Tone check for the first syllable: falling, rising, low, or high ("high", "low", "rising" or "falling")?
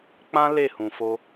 high